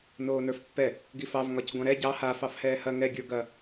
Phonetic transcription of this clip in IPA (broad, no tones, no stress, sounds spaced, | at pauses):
n oː n ə˞ f pː ɛ | ɡ i f ɑ v ŋ ɒ c ɡʷ ɑ̃ ɾ ɛ ɟ ɑ h a f ɑ f h ɛː h ɐ ŋ ɛ ɡʲ ə˞ ɡ ɐ